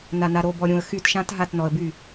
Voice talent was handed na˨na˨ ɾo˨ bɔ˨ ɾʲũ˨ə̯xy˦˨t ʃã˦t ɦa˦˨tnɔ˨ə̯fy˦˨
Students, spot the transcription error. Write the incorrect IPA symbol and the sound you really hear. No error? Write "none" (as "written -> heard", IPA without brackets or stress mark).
f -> b